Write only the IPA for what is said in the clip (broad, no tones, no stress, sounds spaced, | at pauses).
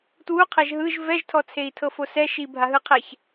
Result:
t w u qʰ ɛ ʒ ɦ ɯ ʒ v ɛ ʒ tʰ ɔ t͡sʰ e i̯ tʰ ɤ f o s ɛ ʃ i bʱ a ɦ ɯ qʰ ɛ ç